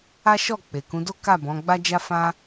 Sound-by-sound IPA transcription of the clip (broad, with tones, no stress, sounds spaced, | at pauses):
a˦ ʃ ɔ˦˨ k͡p e˨ k ũ˨˦ d o˦ k a˦˨ b ɔ̃˨˦ ɡ͡b a˦ d͡ʒ a˦ f ã˦